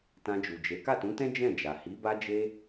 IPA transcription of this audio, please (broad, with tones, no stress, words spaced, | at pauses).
tã˧d͡ʒu˨d͡ʒe˨˦ ka˦˨tũ˨˦tɛ̃˦ d͡ʒɛ̃˦˨ d͡ʒa˨ hi˨˦ba˦d͡ʒe˦